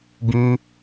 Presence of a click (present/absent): absent